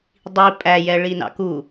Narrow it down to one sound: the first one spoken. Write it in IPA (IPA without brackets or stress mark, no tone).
dˤ